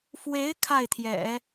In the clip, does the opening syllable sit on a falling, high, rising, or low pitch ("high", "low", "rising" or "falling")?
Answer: rising